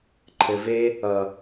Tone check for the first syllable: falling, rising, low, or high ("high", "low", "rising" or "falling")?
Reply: low